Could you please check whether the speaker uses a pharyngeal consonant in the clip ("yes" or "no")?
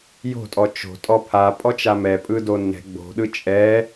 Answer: no